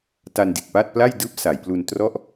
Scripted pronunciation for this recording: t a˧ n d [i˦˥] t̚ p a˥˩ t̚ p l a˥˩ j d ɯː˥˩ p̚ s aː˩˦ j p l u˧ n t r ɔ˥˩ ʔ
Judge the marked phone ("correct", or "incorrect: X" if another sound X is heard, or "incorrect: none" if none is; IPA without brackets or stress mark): incorrect: i˨˩